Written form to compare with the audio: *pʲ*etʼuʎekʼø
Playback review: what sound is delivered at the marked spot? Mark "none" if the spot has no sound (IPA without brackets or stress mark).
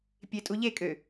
pʲ